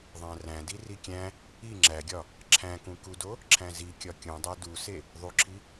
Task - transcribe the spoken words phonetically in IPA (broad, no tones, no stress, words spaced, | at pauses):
ðˤæ̃ræ̃di rikʲæ̃ | i ŋ͡ǁæɡʲɒ | ǁʰæ̃kũkudo | ǁʰæ̃zi kʲɒkʲũdˤæ duse | ðˤuǁʰi